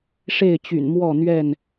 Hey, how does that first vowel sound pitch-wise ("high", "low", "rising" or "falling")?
falling